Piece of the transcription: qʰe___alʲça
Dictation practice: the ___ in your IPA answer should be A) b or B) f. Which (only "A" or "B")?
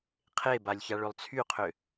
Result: A